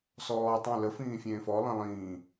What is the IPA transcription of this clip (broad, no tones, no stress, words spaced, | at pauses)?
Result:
sɔː tˤõ ləfĩː fʲẽːfɔlˠẽ lˠĩː